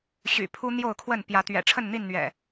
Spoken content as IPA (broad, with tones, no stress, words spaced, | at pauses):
ɕy̰˨˩pʰu˦ n̪jo˥˨ʊ̯kʰwə˥˨npjä˨˦ t̪ɥɛ̰˨˩ʈ͡ʂʰə˥˨nn̪i˥˨nn̪ɥɛ̰˨˩